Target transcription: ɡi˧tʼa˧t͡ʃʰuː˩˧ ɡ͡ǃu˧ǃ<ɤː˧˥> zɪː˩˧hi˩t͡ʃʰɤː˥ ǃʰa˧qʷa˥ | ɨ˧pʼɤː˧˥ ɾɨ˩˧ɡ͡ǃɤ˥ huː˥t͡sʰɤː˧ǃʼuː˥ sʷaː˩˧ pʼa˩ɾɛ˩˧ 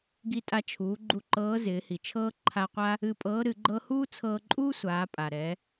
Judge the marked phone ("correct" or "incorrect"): correct